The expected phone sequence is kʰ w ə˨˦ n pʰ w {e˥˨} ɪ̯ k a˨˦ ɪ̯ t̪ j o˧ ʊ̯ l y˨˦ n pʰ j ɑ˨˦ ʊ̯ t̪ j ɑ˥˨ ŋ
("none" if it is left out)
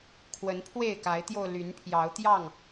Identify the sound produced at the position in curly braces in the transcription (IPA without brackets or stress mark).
e˥˨